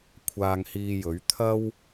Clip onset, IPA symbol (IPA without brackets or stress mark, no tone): kʷʰ